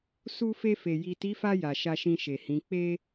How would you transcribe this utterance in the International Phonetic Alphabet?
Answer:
su˧fe˧fe˨ ji˨ti˨˦fa˧ ja˨ ʃa˧ʃĩ˧ʃe˨hĩ˨˦ k͡pe˦

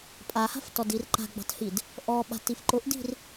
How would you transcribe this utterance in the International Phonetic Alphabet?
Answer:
pʼaha̤ftɔdir ǃa̤ɡ͡bɑ̤thid | ʔɔɓa̤tif ǃʊʔdi̤r

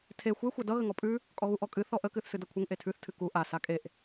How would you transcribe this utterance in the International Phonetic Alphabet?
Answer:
tʰe xʷe xʷadʌ ɣəŋɔpʼʉ | kʼɔɣuʔɔkʼɨ θɔʔə kɨθsɨdʌkʷʰəŋ ʔetʰʉθ tʰɨku ʔa sakʼeʔ

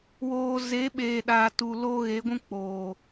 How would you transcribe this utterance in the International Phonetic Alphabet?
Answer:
woː˨ ze˨˦ ɓeː˨ɗa˨ tu˨lo˦ ɣe˨˦ɡʷũ˦k͡poː˨

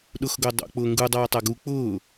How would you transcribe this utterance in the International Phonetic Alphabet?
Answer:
ɗʊxɡʊː dˤo̰ k͡pʊːŋɡu dˤaːtˤaɡu k͡pʊː

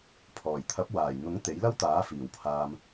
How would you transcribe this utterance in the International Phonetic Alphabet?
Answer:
pʰɔː˨˩jt̪ʰɐ˨˥p̚ waː˨˩jn̪ʊ˨˥ŋ t̪e˨˥jlɐ˥wt̪aː˨˥ fiː˨˩wpʰaː˧m

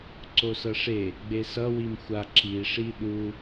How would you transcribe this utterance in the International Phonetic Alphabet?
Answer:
ǀosʌʂe | ɡ͡besʌ wimxʷa ǁi ʂiɗu

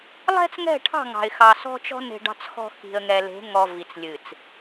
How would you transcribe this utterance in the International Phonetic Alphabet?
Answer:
lˠɛ̤˦t͡sŋɛ̤˦˨ʈʰɑ̤˦˨ ŋɑ̤˨ɪ̯xɑ˨sɔ̤˦t͡ʃɔ̤˦ ne̤˨ɖɑ̤˨t͡sxɔ̤˨ xi̤˨ə̯ŋɛ˨le̤˨˦ ŋɔ˨ vi˨t͡slʲɨ˨t͡s

